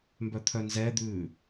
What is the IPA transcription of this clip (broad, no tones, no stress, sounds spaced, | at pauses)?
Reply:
m b œ t̪ʰ œ n z ɛ d̪ ʉː